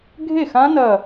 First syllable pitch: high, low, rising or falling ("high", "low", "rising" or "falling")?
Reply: falling